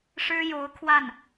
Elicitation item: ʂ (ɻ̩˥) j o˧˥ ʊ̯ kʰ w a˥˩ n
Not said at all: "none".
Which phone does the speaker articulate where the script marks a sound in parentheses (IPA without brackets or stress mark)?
ɻ̩˥